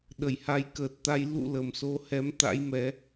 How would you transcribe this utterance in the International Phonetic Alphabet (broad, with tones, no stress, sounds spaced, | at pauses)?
ɗ ə˧˩ j h a˨˦ j k əː˨˩ t̚ t̪ a˧ j l ṵ˧˨ l ə˨˩ m s o˧ h ɛ˨˦ m t̪ a̰˧˥ j m ɛ˨˦